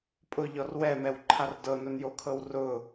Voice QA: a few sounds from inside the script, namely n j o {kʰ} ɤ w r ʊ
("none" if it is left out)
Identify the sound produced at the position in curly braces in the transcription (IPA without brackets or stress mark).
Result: kʰ